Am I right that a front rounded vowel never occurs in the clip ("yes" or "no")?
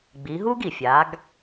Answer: yes